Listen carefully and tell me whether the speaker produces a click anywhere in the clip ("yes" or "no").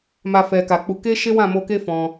no